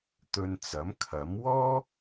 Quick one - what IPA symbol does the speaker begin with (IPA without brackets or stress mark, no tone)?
t̪